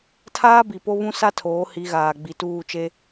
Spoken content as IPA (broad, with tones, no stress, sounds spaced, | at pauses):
tʰ aː˦ b i˨ p o˦ β ũ˦ s a˦ tʰ oː˨˦ h i˨˦ ɣ aː˨ ɡ͡b i˨ t uː˦˨ t͡ʃ e˦